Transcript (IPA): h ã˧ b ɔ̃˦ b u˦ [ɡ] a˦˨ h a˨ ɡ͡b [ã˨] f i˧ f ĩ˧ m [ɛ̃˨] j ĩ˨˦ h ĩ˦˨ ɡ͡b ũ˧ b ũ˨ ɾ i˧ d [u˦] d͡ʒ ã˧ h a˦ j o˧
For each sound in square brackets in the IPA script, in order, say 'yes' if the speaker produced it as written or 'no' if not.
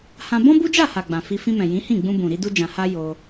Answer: no, yes, yes, yes

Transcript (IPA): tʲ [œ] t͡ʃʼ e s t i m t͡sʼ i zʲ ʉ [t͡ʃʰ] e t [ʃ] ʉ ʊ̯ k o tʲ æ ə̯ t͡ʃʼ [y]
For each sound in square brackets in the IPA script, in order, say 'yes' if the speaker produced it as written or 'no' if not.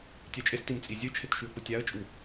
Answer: yes, yes, yes, no

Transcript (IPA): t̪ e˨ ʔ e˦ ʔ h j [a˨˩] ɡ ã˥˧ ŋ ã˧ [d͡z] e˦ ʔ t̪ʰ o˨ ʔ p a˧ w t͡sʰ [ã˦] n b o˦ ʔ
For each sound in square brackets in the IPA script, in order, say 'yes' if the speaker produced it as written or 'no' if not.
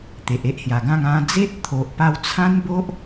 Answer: yes, yes, yes

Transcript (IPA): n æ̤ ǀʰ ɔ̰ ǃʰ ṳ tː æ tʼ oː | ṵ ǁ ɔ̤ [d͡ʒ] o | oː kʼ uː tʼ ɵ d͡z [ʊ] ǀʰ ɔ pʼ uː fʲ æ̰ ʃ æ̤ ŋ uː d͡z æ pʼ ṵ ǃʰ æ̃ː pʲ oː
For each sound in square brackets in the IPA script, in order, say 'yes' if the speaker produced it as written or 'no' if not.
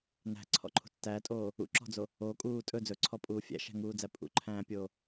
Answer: no, no

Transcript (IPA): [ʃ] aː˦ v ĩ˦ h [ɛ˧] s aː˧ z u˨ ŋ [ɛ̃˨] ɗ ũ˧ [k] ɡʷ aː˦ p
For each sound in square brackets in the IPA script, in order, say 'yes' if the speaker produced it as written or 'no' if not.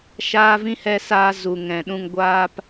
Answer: yes, yes, yes, no

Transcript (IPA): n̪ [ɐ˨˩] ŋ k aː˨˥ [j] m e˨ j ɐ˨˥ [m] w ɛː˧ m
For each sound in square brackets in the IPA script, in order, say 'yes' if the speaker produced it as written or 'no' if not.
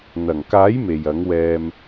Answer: yes, yes, no

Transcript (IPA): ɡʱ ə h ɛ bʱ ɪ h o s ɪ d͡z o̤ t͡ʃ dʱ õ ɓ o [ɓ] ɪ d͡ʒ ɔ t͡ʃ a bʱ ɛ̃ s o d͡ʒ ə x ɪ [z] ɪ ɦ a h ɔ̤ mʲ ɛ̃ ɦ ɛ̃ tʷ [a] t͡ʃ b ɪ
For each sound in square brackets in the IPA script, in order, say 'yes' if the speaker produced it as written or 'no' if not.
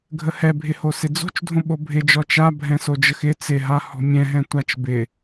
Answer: no, no, yes

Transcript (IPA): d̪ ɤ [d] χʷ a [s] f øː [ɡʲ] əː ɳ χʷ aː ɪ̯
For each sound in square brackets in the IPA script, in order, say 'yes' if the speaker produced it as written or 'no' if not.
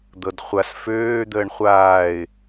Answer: yes, yes, no

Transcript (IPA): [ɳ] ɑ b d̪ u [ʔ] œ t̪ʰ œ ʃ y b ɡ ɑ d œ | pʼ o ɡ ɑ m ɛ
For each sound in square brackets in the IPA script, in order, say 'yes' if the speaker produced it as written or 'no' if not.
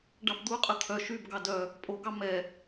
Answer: no, no

